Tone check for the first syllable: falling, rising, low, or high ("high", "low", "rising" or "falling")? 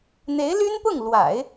rising